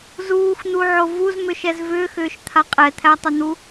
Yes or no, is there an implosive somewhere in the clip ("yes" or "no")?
no